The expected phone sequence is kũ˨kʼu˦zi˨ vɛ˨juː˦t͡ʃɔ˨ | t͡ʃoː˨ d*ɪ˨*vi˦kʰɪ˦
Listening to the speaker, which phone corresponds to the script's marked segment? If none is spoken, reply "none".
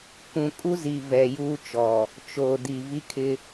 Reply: i˨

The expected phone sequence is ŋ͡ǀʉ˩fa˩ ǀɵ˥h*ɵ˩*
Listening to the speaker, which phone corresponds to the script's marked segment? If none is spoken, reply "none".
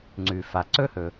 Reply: ɵ˩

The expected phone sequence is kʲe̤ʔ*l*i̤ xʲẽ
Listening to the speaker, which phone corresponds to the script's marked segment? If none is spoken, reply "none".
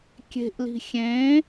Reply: l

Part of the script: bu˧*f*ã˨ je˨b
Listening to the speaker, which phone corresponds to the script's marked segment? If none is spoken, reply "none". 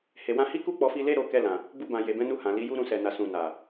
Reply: b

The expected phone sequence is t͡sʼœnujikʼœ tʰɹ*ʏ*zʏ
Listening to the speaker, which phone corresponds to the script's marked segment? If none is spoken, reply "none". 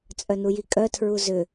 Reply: u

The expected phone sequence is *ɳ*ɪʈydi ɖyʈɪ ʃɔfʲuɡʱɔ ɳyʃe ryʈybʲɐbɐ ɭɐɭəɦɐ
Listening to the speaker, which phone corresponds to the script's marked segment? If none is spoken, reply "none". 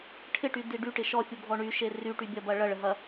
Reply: ʈʰ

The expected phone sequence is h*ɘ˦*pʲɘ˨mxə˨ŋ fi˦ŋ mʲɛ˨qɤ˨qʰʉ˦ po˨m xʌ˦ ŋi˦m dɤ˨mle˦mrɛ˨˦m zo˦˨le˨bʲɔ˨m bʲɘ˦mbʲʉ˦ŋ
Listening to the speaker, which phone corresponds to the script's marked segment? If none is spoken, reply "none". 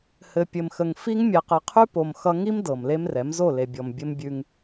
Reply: ɘ˨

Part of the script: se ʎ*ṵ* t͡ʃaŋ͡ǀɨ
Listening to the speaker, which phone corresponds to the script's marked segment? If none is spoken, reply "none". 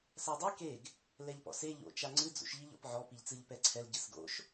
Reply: o̰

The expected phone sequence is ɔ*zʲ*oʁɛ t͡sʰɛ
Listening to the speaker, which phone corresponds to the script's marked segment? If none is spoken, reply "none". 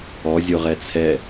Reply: zʲ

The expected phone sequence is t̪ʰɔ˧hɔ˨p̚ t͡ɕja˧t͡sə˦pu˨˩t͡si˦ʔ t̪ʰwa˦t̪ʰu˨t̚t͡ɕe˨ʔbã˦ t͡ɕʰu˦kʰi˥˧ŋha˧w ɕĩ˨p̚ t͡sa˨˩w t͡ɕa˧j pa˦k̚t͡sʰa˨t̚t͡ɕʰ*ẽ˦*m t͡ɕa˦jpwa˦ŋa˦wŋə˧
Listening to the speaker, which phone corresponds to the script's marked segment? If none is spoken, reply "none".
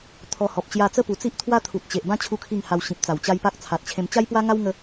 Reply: ẽ˧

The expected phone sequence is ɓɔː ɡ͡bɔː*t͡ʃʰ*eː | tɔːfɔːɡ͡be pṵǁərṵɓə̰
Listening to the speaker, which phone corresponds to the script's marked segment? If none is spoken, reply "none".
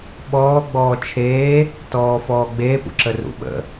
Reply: t͡ʃʰ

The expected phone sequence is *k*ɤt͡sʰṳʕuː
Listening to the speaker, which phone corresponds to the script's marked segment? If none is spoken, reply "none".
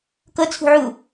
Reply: k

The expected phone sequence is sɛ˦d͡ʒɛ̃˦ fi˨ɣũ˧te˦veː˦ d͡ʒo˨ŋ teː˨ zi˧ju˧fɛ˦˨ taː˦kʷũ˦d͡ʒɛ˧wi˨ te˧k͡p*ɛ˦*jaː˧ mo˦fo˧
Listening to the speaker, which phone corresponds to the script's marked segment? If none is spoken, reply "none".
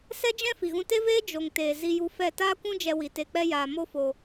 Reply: ɛ˦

